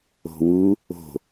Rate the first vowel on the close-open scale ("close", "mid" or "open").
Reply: mid